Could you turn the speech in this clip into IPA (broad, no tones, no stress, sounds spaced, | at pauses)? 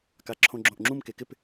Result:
k a ǁʰ õ ɡ͡ǁ õ ʔ ŋ͡ǁ ũ m k e k ɪ p